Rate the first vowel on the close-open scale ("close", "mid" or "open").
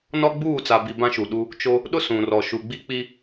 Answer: mid